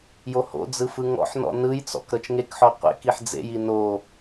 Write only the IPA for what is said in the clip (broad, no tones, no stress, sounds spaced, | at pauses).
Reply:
j o h o̰ d͡z ɯ f ɯ ŋ ɔ̰ ħ n ɔ̰ n ɯ j t͡s ɔ̰ k ɾ ɤ t͡ʃ ŋ e k ħ ɔ qʷ ḛ k i ħ d͡z ḛ j i n o